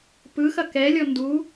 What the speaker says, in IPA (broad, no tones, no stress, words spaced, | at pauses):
pɯxɐ kɛlʲɔ ndu